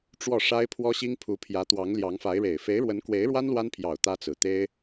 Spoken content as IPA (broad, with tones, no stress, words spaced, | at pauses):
ʈ͡ʂwɔ˥˩ʂa˥ɪ̯ pʰwɔ˥ɕi˥ŋpʰu˧˥pʰjä˧˥ t̪wɑ˧˥ŋljɑ˧˥ŋfa˧˥ɪ̯ɻe˨˩ɪ̯ fe˧˥ɪ̯ɻwə˧˥nkwe˧˥ɪ̯ɻwa˥n lwa˥npʰjɑ˨˩ʊ̯ t̪ä˥t͡sɹ̩˨˩ t̪e˥ɪ̯